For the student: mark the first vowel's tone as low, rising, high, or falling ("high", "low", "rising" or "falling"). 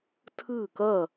falling